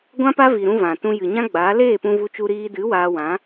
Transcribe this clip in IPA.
ɡʷ ã˦ p a˦ v i˨ ɾ ũ˧ v ã˨ t ũ˧ j ɨ˨ ɲ ã˦ ɡ͡b aː˨˦ l eː˦˨ p ũ˧ v u˧ t͡ʃ u˧ ɾ iː˧ d ɨ˨˦ w aː˧ w ã˨˦

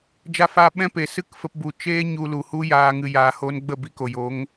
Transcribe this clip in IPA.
d͡ʒ a˧ f aː˧ ɓ ɛ̃˦ p e˨ s ɨ˦ k f ə˧ p b u˨ t͡ʃ eː˦ ɲ u˧ l u˨ h u˦ j aː˧ ŋ ɨ˧ j aː˧ h oː˦ n ɡ͡b ə˦˨ b i˧ k o˨ j o˨˦ ŋ

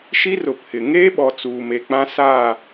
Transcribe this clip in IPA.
ʃ i˦ r ʊ˨ pʰ ɪ˨ ŋ eː˦ ɓ ɔ˨ t͡s uː˨ m e˨ k͡p ã˦ s aː˦˨

